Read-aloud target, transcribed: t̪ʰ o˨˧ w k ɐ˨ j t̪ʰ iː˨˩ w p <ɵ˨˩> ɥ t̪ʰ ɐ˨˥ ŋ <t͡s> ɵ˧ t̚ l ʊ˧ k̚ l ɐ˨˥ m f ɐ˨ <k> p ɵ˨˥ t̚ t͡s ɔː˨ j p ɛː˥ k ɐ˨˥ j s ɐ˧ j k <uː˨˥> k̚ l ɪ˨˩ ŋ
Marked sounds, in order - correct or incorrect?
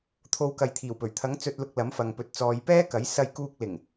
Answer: correct, correct, incorrect, incorrect

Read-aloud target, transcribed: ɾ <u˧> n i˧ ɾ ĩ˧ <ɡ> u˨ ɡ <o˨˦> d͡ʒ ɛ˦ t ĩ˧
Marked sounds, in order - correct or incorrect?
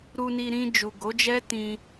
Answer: correct, incorrect, correct

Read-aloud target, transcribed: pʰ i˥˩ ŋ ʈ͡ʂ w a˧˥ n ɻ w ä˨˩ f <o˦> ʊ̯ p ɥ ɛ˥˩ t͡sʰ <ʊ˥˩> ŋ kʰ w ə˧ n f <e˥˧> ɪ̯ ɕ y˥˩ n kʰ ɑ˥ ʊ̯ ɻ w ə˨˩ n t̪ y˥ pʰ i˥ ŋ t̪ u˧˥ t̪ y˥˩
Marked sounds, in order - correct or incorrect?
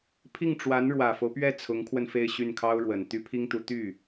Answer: correct, incorrect, correct

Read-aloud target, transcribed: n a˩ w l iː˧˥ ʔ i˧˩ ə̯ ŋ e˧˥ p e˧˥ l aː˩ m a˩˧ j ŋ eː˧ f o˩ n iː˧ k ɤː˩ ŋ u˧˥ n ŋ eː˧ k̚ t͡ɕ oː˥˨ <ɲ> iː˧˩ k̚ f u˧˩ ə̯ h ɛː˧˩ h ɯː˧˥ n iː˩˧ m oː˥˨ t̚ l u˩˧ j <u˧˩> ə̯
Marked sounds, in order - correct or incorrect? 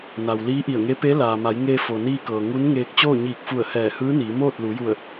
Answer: correct, correct

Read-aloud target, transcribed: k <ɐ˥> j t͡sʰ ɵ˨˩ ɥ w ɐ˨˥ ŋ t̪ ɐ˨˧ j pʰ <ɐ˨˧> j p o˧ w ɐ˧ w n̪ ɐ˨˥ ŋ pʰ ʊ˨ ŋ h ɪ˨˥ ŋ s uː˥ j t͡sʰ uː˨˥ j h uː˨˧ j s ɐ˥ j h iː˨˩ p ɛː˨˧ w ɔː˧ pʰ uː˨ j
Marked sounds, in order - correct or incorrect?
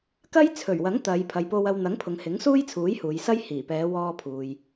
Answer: correct, incorrect

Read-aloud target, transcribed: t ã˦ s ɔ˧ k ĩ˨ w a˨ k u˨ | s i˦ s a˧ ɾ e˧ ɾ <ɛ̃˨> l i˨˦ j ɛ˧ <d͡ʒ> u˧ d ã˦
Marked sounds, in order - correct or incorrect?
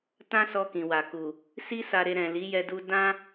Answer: correct, incorrect

